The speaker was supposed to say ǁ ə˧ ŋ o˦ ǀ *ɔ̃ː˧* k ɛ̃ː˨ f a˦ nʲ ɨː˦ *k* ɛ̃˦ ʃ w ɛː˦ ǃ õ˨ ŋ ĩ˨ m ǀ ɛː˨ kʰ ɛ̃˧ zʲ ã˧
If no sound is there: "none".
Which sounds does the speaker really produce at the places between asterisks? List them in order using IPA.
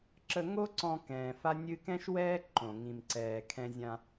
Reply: ɔ̃˧, k

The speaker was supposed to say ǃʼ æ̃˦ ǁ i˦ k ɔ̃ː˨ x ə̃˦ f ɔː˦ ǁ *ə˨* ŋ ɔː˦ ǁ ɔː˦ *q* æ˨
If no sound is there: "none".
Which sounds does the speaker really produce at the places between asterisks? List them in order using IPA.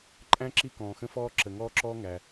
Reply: ə˨, ŋ

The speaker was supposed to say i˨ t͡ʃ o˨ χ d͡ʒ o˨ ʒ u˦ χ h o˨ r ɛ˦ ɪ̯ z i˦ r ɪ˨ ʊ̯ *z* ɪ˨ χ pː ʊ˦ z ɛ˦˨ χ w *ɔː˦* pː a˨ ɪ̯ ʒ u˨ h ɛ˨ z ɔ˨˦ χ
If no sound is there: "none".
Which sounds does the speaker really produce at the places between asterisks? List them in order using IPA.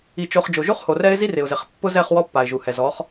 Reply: z, ɔ˦

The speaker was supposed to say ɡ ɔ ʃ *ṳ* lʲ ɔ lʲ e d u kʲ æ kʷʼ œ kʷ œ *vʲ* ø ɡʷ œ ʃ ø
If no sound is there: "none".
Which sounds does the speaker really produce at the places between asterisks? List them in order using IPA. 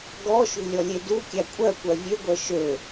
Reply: ṳ, vʲ

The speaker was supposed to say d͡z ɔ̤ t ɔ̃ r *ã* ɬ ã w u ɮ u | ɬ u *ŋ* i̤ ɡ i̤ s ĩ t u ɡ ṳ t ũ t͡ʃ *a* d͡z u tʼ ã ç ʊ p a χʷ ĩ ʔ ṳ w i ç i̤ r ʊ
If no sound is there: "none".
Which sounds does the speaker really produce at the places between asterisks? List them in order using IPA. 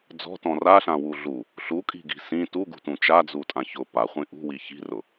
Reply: a, kʼ, a

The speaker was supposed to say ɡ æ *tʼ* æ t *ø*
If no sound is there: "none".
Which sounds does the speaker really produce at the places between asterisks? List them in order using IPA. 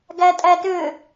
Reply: tʼ, ø

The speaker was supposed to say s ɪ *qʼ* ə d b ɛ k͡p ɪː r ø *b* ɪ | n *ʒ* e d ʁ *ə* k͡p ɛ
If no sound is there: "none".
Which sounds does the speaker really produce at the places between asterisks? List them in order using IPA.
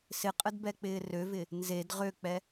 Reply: qʼ, v, z, ø

